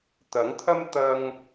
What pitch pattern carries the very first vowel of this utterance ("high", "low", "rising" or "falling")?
rising